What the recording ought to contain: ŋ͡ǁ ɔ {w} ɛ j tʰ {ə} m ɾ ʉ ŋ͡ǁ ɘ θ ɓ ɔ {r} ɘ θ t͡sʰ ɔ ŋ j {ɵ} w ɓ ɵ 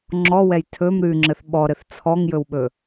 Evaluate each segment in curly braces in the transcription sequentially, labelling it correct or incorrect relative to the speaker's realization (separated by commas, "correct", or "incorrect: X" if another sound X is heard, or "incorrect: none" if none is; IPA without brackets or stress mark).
correct, incorrect: ɵ, incorrect: ɾ, correct